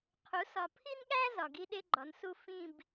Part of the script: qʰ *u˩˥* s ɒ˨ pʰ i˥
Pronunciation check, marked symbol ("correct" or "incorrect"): correct